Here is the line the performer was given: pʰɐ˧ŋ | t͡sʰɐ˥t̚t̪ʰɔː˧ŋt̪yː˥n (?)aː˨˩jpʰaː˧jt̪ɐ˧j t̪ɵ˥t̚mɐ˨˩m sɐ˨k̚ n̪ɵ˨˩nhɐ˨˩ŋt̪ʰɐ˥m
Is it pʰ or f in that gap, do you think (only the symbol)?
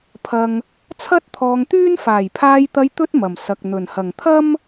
f